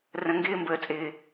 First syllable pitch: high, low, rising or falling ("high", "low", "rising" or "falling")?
low